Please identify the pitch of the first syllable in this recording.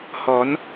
rising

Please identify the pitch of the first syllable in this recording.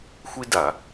high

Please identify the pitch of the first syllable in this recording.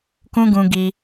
high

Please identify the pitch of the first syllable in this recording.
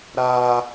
high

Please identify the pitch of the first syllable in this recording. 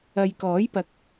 low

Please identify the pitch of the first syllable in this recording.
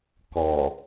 low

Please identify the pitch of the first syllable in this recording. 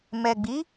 low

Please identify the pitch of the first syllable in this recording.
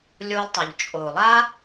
high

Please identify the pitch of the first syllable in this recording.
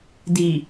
low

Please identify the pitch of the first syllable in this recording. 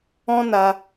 high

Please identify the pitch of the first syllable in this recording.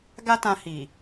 high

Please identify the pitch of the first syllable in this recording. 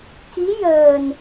rising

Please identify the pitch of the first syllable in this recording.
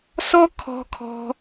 high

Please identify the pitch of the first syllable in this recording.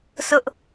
high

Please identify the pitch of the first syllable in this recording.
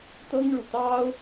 high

